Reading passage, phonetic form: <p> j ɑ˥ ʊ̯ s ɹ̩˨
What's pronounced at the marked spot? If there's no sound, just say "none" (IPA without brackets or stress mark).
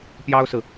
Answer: p